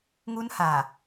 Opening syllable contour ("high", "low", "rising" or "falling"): high